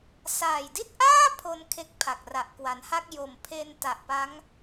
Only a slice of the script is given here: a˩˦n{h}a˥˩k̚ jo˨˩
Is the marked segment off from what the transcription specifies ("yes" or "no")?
no